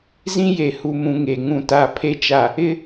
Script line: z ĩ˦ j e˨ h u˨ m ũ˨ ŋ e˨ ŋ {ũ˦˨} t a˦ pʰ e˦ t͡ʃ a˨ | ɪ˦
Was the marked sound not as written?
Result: no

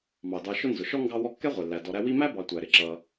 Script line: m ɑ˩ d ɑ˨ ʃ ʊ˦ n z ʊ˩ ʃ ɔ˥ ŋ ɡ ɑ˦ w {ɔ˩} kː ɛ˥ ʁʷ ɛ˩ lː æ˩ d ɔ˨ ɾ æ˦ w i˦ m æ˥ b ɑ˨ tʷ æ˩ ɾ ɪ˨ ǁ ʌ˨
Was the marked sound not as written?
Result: yes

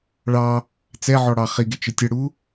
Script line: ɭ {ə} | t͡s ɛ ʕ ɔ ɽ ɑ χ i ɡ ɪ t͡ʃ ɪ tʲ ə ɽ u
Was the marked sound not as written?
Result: yes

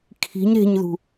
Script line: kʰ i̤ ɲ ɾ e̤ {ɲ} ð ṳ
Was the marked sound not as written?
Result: no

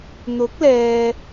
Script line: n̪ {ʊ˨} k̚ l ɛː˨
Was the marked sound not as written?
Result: yes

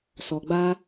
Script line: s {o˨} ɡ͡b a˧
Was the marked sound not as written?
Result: yes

